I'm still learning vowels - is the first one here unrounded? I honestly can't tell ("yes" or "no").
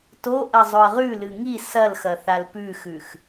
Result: no